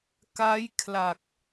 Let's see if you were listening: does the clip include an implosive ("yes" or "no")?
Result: no